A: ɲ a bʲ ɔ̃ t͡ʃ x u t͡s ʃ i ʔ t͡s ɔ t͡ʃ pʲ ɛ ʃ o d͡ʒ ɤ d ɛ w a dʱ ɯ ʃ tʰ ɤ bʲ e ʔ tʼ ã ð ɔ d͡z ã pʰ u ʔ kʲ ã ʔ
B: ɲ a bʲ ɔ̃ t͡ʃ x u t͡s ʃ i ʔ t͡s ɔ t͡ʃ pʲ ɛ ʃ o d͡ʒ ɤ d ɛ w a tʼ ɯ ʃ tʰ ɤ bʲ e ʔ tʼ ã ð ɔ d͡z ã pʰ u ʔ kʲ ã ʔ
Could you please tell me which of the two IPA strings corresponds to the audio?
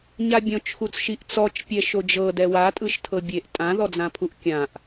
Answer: B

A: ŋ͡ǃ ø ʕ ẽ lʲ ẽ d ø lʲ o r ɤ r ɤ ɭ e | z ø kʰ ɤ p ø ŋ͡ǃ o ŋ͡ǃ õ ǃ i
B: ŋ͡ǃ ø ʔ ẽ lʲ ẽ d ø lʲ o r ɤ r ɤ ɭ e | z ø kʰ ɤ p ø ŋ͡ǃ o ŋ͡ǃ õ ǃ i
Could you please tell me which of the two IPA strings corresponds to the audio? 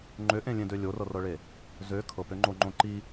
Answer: B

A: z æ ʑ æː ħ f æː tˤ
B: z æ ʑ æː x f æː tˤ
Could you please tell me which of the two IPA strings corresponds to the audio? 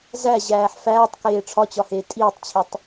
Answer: A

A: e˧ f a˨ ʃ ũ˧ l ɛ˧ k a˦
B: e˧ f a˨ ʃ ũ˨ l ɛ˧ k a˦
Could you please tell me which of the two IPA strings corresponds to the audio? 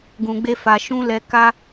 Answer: A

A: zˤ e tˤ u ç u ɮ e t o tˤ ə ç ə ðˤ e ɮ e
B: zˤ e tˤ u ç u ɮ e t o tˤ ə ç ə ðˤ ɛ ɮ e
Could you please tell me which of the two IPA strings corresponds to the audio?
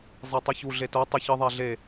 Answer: B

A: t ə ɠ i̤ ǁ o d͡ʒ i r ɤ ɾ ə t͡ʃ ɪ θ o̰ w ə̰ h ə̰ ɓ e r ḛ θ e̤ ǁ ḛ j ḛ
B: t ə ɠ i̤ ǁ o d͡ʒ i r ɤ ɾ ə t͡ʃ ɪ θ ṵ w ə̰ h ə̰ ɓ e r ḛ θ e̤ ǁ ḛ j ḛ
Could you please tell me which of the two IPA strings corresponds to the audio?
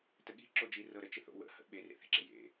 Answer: A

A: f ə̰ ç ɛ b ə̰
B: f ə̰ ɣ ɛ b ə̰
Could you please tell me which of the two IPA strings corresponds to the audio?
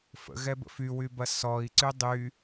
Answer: B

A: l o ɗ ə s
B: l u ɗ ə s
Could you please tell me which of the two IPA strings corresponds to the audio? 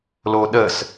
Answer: A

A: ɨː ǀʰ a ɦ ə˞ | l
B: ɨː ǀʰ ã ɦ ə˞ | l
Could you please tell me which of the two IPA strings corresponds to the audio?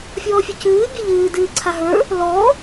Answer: A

